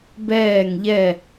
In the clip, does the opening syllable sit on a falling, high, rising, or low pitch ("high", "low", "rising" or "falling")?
falling